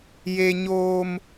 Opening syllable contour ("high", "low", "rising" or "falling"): high